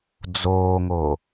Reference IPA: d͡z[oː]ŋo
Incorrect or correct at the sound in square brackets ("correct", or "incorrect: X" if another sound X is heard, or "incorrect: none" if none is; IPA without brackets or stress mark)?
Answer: correct